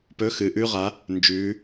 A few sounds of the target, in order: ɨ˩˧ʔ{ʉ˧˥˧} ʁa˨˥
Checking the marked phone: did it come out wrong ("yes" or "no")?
no